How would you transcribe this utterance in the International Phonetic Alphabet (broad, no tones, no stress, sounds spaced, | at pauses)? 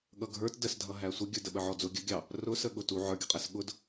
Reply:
ɠ ʌ ɡʱ ə˞ t d ə s dʱ ʌ ɦ æ sʷ ə ɡʲ ə˞ d ə ɓ ə ʕ ɔ d͡z ʊ ɡʲ ə ɡʲ ɑ | r ʊ s ə ɠ ʊ t u ʕ ə˞ ɡʲ ʊ qʼ æ s ɠ ʊ d